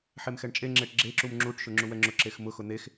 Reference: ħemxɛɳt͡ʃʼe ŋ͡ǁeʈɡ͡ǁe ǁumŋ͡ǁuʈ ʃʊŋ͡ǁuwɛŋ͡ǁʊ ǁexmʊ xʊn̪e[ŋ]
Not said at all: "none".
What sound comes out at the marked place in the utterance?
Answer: x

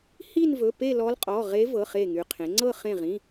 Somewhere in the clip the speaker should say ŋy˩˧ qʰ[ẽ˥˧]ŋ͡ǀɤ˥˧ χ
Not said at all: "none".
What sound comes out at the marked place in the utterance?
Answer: ẽ˩˧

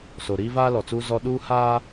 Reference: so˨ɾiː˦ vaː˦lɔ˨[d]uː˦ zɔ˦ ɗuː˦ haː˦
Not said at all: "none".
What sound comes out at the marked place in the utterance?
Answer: t͡s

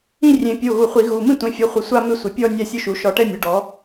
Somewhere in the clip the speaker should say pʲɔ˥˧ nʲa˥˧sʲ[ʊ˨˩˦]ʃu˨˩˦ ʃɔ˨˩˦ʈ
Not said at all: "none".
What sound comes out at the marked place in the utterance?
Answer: ʊ˥˧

